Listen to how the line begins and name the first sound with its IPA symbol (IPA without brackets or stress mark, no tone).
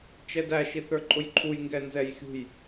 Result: t͡ʃ